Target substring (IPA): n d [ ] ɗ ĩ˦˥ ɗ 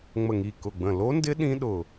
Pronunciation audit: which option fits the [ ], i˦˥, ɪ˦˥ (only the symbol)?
ɪ˦˥